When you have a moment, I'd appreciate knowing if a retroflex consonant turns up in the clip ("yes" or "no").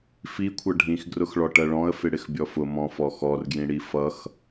yes